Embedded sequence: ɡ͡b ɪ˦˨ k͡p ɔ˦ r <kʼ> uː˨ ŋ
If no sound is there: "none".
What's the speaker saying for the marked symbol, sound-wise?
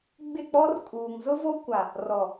kʼ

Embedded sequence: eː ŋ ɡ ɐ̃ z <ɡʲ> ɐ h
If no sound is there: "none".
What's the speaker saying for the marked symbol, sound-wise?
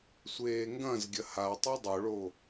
ɡʲ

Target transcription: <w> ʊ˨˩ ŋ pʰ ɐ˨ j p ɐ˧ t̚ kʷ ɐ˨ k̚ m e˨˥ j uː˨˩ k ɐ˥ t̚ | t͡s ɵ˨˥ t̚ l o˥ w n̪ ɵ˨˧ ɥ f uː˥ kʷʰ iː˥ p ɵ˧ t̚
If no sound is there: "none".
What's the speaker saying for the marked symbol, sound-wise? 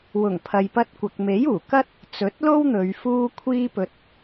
w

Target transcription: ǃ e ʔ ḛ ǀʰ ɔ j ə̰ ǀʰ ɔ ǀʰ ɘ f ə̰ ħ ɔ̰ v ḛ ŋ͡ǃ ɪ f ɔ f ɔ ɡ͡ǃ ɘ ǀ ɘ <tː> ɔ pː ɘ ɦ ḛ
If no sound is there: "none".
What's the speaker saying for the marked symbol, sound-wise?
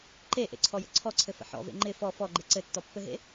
tː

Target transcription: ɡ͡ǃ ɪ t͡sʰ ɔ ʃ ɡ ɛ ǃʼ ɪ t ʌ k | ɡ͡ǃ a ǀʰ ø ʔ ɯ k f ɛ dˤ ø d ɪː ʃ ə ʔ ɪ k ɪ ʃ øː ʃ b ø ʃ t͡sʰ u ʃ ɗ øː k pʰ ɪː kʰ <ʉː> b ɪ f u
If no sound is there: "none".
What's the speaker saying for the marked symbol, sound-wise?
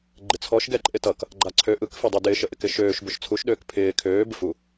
øː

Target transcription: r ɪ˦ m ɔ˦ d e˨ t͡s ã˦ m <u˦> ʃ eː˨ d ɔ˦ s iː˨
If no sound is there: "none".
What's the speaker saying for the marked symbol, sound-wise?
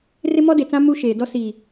u˦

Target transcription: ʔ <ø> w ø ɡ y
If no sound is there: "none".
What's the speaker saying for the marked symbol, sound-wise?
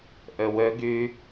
ø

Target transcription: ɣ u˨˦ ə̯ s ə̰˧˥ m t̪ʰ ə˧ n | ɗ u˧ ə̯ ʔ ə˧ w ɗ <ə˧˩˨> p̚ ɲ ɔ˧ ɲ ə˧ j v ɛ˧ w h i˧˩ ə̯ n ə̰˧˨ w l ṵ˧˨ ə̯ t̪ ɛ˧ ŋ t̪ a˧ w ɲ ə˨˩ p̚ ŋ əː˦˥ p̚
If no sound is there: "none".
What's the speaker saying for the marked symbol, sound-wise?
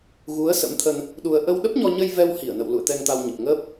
ə˦˥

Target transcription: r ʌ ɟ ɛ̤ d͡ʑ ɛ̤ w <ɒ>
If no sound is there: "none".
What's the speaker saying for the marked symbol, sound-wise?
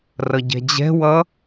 ʌ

